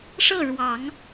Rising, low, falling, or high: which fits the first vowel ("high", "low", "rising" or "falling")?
falling